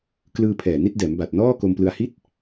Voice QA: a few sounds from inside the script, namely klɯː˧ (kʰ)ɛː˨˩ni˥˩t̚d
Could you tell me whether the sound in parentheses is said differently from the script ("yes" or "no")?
yes